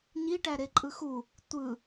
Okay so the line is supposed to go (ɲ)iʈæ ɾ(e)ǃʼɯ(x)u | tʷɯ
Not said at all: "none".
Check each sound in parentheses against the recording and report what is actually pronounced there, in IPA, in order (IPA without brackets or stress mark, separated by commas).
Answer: ɲ, e, x